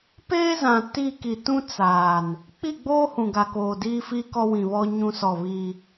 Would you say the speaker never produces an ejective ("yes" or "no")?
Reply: yes